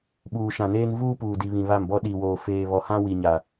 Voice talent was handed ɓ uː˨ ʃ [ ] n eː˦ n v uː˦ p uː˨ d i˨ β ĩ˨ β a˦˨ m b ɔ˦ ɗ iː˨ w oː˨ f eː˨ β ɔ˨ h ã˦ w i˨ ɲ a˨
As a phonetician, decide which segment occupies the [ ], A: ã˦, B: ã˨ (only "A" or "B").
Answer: B